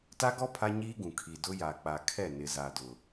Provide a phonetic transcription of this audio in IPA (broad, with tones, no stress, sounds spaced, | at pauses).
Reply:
t a˦ ɡ ɔ˦ pʰ a˦ ɲ iː˦ ɡ ũ˨ kʰ i˨ d ʊ˦ j a˨ k͡p a˨ kʰ ɛ˦˨ n ɪ˨ z a˨ d ʊ˨